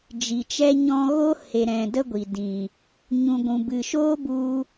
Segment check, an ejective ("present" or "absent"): absent